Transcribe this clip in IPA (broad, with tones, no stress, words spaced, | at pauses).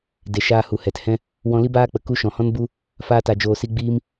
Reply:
de˨ ʃaː˧hu˨ hɛ˨thɛ̃˦ | wɔ̃˧li˦baː˦k͡pə˨ ku˧ʃɔ̃˨ hɔ̃˦nbu˦ | faː˦ta˧d͡ʒoː˧si˦ ɡ͡biː˦m